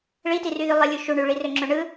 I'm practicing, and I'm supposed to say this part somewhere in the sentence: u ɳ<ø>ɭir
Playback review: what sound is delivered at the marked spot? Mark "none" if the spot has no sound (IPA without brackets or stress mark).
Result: y